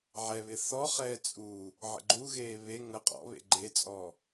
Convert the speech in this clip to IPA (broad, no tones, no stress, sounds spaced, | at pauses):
ʕ ɛ β ɪ θ ɔ χ ɛː t͡sʼ u | ʕ ə̰ ɡ͡ǃ u ɣ eː β e ŋ ə qʼ ɔ̰ β ḛ ɡ͡ǃ e t͡sʼ ɔ